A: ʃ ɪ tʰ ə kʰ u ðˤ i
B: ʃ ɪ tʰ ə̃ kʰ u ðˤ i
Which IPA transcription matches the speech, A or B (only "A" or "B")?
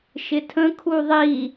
B